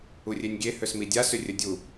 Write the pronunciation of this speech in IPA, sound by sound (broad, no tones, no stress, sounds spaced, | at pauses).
u rʲ e nʲ ɡʲ e h ø s m i dʲ a s ʏ rʲ ə dʲ u